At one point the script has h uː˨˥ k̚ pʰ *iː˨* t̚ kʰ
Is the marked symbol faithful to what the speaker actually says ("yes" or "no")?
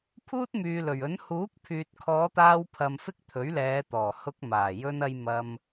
no